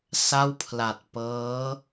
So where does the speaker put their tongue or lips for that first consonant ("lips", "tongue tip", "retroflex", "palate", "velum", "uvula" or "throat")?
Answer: tongue tip